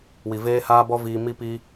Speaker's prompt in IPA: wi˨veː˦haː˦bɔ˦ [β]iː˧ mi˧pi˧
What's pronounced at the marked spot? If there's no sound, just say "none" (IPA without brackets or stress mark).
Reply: v